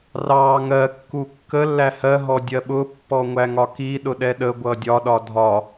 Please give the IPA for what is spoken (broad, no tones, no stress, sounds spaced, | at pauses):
r ɑ ŋ ɜ kː u kː ə lː æ h ɜ ɦ ɔ dʲ ɜ ɓ ʊ pː ɔ ŋʷ æ ŋ ɒ k i ɗ ʊ ɗ ɛ ɗ ə ɡʷ ʌ dʲ ɒ ɗ ɒ dʱ ɒ